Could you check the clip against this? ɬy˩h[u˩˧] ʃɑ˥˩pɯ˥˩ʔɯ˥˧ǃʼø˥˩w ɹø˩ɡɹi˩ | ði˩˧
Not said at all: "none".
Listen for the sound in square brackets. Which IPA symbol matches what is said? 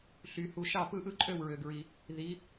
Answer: u˩˧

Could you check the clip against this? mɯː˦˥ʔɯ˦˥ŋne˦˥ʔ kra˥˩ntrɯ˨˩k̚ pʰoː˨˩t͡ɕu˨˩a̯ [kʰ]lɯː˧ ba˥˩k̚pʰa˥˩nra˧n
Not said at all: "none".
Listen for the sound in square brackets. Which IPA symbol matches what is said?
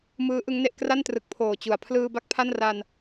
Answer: pʰ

